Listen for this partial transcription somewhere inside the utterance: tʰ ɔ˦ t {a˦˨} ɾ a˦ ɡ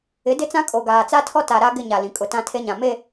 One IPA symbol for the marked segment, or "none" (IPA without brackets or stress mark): a˨